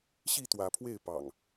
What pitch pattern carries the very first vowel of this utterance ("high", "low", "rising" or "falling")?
falling